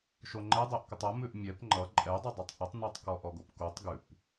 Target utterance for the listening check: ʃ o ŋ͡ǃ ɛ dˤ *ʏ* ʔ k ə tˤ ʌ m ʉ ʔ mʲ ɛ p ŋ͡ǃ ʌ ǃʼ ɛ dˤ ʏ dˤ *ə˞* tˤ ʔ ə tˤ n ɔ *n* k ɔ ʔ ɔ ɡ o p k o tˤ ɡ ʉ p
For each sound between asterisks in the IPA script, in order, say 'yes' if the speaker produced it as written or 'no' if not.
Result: no, no, no

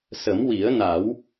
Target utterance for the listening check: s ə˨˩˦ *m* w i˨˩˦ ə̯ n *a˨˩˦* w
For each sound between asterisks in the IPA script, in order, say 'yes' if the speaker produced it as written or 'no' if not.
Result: yes, yes

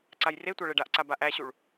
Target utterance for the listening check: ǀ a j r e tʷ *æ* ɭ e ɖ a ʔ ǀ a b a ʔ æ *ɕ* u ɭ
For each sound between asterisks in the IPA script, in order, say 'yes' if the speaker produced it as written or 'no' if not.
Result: no, yes

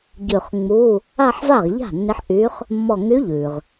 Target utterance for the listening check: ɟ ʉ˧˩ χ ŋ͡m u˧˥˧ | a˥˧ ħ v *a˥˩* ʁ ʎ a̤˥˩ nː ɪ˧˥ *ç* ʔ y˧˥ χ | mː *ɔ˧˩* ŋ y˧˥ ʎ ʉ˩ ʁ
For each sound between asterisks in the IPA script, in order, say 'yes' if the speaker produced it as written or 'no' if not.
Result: yes, no, yes

